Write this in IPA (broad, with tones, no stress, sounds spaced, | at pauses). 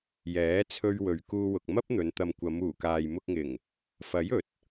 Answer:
j ɛː˨˥ t͡sʰ ɵ˧ ɥ w ɵ˨ ɥ k uː˧ w ʊ˨ k̚ m ɐ˥ p̚ n̪ ɵ˨˧ n t̪ ɐ˨ m kʷ ɐ˨˧ m uː˨˩ k aː˨ j m ʊ˧ k̚ ŋ ɪ˨˩ ŋ | f ɐ˨˥ j ɵ˨˥ t̚